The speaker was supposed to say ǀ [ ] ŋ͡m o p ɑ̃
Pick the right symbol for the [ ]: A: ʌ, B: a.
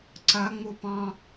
B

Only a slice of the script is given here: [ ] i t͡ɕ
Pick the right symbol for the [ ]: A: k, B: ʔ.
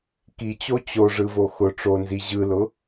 A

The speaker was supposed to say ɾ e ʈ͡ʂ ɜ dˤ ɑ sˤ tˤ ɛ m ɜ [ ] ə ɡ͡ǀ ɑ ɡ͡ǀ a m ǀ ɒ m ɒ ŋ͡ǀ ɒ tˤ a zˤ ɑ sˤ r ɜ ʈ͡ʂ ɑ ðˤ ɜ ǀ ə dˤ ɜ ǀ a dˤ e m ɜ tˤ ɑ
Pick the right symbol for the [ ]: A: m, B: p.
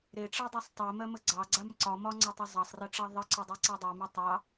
A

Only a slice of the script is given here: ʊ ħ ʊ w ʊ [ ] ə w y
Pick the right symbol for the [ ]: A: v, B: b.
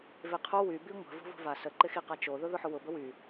B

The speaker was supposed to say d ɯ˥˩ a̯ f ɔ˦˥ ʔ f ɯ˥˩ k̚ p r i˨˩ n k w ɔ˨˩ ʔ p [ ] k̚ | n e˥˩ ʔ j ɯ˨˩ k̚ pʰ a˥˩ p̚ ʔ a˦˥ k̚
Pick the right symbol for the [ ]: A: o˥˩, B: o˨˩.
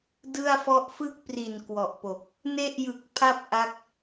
B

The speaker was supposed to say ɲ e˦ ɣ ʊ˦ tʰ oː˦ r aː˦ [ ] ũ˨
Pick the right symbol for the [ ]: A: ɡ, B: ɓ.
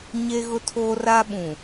B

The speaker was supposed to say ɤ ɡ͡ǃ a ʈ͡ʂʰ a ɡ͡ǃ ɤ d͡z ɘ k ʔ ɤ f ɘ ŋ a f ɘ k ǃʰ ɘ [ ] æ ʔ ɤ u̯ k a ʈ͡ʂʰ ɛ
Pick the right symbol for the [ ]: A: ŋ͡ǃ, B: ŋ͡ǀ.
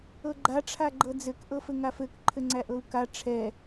B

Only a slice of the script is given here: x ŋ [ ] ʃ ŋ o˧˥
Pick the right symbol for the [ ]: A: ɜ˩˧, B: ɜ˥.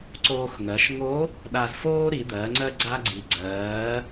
A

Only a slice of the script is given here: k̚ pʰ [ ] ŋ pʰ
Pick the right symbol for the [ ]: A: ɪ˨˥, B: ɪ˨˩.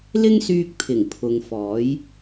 B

